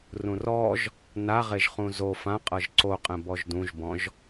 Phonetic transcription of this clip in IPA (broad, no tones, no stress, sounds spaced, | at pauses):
r ũ r ɔ ʒ | n a ʁ e ʒ χ ũ z o f ã qʼ ɤ ʒ ǀ o qʼ ɛ̃ b ɔ ʒ d ũ ʒ b ɔ̃ ʒ